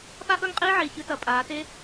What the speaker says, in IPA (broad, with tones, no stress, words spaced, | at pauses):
pa˥ʔɵ˥˧ŋqʼiː˥ ʕi˧˩çɨ˥tɐ˩˧ pʼaː˩˧te˥